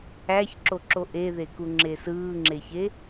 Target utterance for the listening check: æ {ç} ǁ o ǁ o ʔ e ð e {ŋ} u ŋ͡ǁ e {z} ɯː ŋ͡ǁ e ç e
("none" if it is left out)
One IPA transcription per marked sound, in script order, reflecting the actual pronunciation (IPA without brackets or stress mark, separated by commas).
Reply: ç, k, s